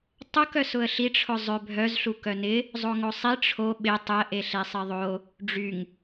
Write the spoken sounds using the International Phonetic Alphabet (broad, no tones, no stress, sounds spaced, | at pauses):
tˤ ʊ k œ s ʊ ə̯ ɬ i ʈ͡ʂʰ ʊ zˤ ø bʱ œ z ɬ u k œ n ɪ | zˤ o ŋ o sˤ i ʈ͡ʂʰ o ɓ ɪ tˤ ʊ ə̯ ʔ e ɬ e sˤ ɪ ðˤ o | ɖ͡ʐ y ŋ